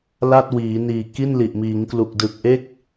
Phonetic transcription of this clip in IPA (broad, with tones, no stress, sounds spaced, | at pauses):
l a˥˩ t̚ w iː˩˦ n iː˨˩ k i˥˩ n l i˨˩ ʔ m iː˩˦ ŋ k l u˨˩ k̚ d ɯ˨˩ k̚ ʔ e˥˩ k̚